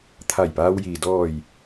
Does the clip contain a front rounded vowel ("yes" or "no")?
no